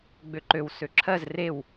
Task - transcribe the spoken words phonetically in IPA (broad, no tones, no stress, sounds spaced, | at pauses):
ɡ͡b ø ǃ ø w s ø ǁʰ ɜ z r e w